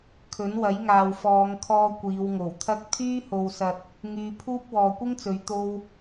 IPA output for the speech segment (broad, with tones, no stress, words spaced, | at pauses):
kʰɵ˨˥nwɐ˨˥jŋaː˨w fɔː˨˧ŋkʰɔː˧ kʷiː˨˧wŋo˨˩wt̪ʰɐ˥k̚ t̪ʰyː˥ho˨wsɐ˨t̚ | ŋyː˧pʰuː˥p̚ wɔː˨kʷɪ˥ŋt͡sɵ˨˧ɥ t̪o˧w